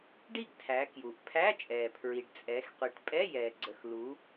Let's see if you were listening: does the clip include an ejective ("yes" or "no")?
yes